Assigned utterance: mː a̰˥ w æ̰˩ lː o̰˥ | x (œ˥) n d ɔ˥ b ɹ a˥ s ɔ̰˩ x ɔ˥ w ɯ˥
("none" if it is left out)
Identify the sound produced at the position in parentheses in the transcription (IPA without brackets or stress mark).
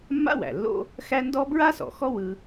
æ˥